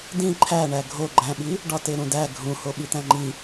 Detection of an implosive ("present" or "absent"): present